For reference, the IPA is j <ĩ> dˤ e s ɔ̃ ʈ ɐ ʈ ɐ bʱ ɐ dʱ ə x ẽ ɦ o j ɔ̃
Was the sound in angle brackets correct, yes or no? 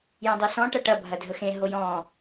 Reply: no